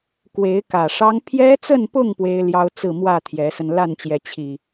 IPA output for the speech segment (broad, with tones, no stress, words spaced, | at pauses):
kwe˨˦ɪ̯kä˨˩ʂɑ˦ŋ pʰjɛ˦t͡sə˥˨npʊ˥˨ŋ pwe˦ɪ̯ljɑ˦ʊ̯ t͡sɹ̩˥˨mwä˥˨ t̪ʰjɛ˨˦sə˧n la˥˨nt͡ɕjɛ˨˦ t͡ɕʰi˨˩